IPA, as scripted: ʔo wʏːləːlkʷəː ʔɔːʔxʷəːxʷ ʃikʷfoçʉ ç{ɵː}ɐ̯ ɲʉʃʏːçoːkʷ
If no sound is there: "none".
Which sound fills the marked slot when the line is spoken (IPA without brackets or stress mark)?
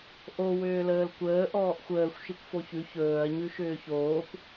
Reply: ɵː